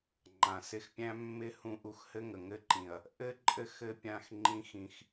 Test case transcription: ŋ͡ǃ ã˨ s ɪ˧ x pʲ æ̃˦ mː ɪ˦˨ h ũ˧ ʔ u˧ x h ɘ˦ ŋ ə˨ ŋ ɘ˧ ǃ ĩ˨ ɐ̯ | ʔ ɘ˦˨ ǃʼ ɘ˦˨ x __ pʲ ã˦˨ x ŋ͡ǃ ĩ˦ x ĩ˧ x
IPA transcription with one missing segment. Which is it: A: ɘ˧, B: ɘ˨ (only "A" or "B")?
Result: A